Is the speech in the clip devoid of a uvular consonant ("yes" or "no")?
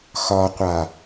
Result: no